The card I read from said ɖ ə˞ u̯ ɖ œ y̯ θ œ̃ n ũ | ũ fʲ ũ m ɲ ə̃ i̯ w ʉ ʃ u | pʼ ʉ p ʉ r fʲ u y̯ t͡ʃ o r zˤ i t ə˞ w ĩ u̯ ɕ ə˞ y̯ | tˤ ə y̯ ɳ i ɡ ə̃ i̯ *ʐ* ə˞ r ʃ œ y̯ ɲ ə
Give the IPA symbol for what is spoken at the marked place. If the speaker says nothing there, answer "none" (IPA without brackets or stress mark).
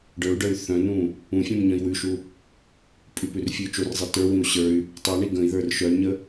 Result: ð